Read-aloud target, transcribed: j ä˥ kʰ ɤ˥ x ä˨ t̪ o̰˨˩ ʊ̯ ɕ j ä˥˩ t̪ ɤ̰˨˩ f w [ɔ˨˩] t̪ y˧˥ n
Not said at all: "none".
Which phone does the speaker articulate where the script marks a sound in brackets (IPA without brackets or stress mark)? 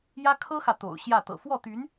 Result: ɔ˥˩